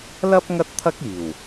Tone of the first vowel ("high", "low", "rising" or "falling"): high